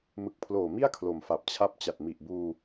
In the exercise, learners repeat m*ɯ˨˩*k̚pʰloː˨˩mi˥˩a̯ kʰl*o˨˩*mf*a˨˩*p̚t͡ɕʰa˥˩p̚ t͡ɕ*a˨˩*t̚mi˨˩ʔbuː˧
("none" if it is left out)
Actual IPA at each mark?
ɯ˨˩, o˨˩, a˨˩, a˨˩

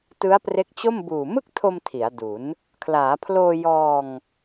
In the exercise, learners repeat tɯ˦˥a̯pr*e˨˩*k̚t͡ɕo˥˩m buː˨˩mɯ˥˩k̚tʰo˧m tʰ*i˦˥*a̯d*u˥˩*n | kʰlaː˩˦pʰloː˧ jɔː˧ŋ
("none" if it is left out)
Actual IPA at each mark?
e˦˥, i˩˦, u˩˦

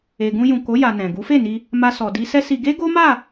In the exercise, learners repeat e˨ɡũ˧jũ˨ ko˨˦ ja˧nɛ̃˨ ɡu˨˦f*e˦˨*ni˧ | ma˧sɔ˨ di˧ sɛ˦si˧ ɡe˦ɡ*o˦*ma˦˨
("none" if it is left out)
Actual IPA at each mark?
e˦˨, o˦

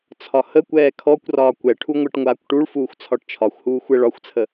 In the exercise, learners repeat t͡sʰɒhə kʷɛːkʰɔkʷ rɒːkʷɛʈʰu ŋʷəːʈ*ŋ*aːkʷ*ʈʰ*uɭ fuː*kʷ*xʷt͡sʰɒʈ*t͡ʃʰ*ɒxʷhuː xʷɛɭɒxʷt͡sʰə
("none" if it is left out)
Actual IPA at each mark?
ŋʷ, ʈ, none, t͡ʃʰ

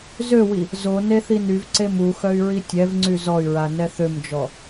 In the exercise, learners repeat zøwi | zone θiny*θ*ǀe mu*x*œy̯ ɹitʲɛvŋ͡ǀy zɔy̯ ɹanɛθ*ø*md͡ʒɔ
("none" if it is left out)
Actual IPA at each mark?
v, x, ø

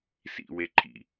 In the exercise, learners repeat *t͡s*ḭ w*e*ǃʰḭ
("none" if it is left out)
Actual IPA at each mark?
s, e

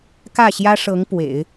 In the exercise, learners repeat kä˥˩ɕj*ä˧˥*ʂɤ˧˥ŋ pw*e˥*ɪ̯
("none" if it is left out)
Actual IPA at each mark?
ä˥, ḛ˨˩˦

